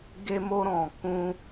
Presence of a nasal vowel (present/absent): present